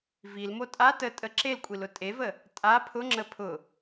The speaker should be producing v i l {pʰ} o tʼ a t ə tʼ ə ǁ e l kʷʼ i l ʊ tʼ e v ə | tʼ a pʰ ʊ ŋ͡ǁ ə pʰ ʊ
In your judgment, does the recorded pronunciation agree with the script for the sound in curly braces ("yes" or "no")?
no